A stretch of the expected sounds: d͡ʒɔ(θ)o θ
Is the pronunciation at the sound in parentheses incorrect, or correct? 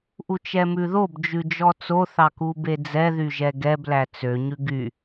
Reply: incorrect